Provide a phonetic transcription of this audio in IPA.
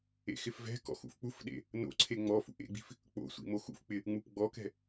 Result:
ḛ x ɪ f v ɛ̤ k ɔ̰ x ṵ f k͡p u f ɗ ḛ | n o̰ ǀʰ e ŋ͡m ɔ f ṵ ʔ ḛ ɡ͡b i̤ f | k͡p o̰ sʷ ḭ m o x ṵ f k͡p ɪ | ŋ͡m u p ɡ͡b ɔ k ɛ̤

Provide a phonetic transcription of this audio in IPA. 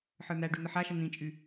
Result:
ħ ə˞ n̪ æ ɖ y n̪ ə ħ a ʃ ə n̪ ĩ t͡ʃʼ y

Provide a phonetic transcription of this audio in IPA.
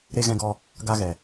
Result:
ɾ e˧ ɣ ɛ̃˧ ɡ ɔ˧ | ɡ a˧ ɣ ɛ˨

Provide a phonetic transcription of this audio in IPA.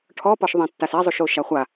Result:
ʈʰ ɔ p ɔ ʃ ðˤ ẽ tː a s ɛ zˤ u ʃ o ʃ a χʷ a

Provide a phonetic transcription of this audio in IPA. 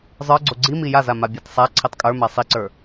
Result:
zˤ ə˞ ɡ͡ǀ o ɡ͡ǀ i m i j a z a m a bʲ a t sˤ a ǀʰ i tˤ kʼ ə˞ m a sˤ i ǀ ə˞

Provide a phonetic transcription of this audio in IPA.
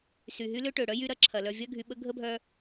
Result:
s y˩ ɦ y˦ l ʏ˥ ʈ ø˩ ɽ œ˥ j y˦ ɾ ɐ˦ ǁʰ ɐ˩ l œ˨ vʲ ɐ˥ ɡʱ y˨ ɓ ə˥ ɡʱ ə˥ bʱ œ˦

